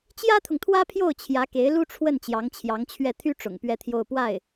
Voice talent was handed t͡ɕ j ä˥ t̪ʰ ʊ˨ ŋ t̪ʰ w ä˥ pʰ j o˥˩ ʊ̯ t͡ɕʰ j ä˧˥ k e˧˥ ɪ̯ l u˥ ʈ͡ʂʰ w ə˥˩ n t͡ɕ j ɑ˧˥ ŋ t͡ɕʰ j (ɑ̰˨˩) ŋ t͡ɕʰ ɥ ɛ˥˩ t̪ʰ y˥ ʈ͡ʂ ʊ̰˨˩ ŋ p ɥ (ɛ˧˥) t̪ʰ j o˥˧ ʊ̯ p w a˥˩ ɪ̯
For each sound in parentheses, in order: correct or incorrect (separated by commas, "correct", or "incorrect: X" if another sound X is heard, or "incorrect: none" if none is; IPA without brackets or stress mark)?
incorrect: ɑ˧˥, incorrect: ɛ˥˧